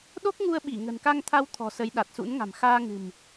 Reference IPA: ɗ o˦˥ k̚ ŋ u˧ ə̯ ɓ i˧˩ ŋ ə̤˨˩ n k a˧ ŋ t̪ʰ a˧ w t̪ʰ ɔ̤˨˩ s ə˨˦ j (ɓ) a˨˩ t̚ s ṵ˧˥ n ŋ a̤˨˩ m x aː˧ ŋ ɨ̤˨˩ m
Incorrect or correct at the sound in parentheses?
incorrect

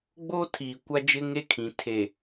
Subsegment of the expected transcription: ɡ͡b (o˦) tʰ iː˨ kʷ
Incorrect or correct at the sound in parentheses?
correct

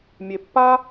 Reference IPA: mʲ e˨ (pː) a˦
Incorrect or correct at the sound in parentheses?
correct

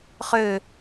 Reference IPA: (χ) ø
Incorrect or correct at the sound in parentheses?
correct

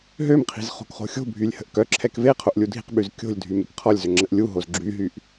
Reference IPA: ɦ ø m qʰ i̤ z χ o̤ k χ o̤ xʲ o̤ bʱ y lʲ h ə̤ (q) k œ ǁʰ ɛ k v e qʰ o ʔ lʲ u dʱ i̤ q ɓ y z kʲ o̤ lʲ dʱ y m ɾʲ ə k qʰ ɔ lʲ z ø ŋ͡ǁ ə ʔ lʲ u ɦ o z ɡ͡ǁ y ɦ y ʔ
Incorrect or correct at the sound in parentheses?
incorrect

